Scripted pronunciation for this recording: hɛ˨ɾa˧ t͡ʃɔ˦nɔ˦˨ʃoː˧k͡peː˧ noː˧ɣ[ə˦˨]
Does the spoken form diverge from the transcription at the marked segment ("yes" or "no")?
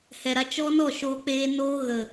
yes